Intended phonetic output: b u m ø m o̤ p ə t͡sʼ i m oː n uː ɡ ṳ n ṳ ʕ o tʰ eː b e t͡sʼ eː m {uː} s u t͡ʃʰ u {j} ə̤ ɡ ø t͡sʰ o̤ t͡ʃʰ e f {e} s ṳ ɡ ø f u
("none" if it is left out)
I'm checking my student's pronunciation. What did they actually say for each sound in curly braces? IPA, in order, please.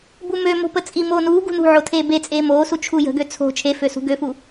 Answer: oː, j, ø

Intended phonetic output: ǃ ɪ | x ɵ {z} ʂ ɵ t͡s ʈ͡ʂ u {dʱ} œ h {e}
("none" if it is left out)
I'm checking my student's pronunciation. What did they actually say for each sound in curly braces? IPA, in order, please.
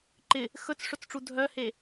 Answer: t͡s, dʱ, e

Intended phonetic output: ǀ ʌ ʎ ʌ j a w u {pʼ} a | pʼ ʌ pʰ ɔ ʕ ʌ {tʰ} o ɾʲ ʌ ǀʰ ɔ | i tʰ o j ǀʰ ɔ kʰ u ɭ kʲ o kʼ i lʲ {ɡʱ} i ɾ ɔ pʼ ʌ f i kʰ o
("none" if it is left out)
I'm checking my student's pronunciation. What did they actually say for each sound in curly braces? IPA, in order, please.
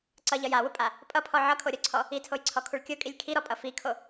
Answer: pʼ, kʰ, kʰ

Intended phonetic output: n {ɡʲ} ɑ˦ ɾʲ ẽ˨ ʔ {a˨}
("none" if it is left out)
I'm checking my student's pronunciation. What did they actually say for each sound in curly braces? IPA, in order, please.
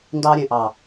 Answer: d, ɑ˨

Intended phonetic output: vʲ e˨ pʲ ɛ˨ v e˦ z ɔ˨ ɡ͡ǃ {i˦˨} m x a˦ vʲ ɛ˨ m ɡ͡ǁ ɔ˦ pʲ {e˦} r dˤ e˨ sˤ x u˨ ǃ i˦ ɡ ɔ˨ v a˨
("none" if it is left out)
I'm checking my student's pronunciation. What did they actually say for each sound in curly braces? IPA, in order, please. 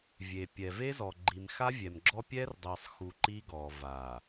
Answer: i˨, ɛ˦

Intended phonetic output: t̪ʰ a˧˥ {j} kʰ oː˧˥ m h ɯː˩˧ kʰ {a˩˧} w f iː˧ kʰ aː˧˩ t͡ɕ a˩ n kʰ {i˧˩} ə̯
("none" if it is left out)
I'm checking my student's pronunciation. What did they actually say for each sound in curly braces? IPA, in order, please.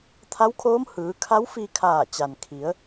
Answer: w, a˧˥, i˩˧

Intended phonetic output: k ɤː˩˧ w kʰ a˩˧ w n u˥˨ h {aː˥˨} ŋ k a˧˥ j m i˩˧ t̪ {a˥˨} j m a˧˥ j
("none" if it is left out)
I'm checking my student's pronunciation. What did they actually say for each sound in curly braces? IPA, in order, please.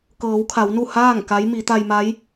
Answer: aː˥˨, a˧

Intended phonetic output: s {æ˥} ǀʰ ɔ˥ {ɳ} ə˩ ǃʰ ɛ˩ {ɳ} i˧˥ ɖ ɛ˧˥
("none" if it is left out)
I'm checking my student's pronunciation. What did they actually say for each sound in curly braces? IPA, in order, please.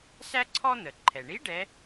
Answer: æ˥, n̪, ɳ

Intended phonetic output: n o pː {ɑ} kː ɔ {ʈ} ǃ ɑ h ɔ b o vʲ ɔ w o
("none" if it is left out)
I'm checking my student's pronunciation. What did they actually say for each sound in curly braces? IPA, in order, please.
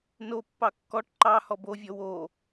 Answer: ɑ, ʈ

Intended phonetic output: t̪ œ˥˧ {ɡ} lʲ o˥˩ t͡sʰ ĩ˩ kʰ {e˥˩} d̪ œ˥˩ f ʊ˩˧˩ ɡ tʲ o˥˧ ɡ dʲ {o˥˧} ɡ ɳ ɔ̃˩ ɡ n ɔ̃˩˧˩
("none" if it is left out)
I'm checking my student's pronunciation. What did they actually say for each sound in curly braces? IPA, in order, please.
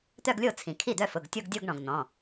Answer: ɡ, i˥˩, o˥˧

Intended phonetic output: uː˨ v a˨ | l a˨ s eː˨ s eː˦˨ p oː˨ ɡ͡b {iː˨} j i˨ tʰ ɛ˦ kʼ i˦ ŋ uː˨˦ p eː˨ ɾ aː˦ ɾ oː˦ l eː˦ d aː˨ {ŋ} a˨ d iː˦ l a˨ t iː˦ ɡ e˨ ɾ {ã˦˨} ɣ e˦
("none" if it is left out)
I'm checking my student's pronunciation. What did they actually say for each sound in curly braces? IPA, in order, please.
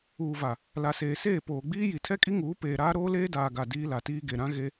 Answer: iː˦, ɡ, ã˦

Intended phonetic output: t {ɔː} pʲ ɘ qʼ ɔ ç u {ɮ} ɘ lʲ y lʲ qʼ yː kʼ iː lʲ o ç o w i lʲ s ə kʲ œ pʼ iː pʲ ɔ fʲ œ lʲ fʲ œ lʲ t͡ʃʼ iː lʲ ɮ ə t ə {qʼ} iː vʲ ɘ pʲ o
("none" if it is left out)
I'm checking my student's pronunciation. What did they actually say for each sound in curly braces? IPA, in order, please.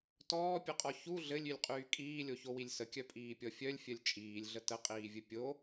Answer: ɔː, ɮ, qʼ

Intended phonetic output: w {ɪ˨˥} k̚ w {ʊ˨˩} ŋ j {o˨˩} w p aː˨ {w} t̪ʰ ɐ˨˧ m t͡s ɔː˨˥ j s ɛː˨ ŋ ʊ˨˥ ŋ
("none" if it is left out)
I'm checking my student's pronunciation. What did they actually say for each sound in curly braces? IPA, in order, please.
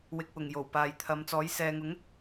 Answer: ɪ˨, ʊ˨˩, o˨˩, j

